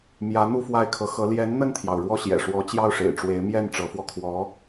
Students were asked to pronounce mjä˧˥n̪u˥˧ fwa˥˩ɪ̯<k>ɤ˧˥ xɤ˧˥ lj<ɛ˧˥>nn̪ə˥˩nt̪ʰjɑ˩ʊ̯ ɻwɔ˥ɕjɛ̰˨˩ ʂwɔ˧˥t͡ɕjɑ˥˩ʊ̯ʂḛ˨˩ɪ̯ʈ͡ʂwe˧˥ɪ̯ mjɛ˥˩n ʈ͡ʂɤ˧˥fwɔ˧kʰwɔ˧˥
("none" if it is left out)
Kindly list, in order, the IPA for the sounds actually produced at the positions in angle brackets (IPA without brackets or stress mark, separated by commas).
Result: kʰ, ɛ˧˥